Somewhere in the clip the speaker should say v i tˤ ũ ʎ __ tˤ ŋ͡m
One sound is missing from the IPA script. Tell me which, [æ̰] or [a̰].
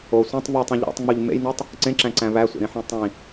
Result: æ̰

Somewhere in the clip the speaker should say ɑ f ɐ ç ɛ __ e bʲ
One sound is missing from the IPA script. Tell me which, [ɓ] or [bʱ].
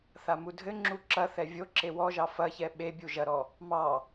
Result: ɓ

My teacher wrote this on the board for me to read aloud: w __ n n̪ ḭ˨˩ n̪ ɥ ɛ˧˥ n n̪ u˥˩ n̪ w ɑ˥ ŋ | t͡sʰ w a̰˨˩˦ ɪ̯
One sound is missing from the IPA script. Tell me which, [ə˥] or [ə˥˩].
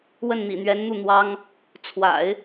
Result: ə˥˩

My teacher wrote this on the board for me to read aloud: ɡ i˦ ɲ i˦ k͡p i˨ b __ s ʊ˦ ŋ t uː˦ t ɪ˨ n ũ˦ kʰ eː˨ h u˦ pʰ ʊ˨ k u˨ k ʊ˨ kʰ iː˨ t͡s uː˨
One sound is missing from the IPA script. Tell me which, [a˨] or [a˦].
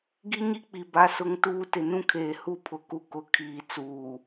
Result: a˦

